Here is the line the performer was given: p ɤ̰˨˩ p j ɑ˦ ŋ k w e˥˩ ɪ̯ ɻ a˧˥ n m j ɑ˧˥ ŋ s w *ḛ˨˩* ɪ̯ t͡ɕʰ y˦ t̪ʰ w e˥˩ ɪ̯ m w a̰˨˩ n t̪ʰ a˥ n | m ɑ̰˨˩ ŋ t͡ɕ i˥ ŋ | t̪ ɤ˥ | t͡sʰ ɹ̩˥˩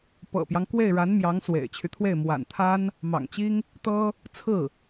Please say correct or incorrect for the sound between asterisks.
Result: correct